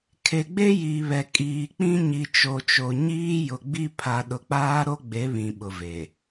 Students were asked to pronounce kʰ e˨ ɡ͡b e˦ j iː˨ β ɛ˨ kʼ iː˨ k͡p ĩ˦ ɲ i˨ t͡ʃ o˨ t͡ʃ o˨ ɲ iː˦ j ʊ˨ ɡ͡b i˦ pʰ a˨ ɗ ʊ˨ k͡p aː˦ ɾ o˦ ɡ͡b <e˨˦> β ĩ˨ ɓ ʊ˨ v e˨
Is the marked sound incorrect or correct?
correct